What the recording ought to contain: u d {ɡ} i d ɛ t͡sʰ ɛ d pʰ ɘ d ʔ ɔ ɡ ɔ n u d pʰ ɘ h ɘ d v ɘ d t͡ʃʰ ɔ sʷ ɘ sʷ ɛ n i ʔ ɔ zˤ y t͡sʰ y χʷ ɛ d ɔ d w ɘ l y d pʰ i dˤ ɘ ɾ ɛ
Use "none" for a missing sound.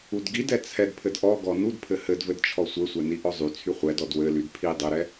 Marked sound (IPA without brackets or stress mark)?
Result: ɡ